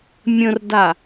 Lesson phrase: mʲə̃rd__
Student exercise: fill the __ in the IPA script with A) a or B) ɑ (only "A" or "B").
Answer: A